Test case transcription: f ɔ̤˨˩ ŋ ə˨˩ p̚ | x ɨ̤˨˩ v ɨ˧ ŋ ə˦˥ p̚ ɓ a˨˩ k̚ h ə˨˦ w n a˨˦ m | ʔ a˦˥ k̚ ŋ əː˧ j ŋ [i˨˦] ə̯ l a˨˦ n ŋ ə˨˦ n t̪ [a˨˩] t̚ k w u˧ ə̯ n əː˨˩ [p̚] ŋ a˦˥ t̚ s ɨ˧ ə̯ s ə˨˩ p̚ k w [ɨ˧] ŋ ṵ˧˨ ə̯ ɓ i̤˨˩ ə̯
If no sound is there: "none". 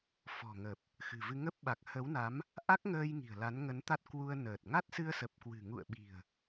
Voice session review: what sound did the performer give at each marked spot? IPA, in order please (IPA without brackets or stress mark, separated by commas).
i̤˨˩, a˦˥, t̚, ɨ̤˨˩